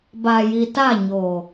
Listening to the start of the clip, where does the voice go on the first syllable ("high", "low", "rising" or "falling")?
low